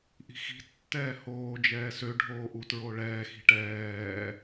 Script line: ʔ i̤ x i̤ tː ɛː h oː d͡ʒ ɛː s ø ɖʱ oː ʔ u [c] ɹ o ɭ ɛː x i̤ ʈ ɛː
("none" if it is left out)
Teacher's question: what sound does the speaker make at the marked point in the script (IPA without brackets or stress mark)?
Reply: t